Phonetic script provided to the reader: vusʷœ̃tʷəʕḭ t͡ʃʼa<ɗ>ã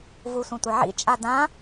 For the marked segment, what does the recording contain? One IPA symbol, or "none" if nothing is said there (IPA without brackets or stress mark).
d